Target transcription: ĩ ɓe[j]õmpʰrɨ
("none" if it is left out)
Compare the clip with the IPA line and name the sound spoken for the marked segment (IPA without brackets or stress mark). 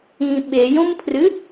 j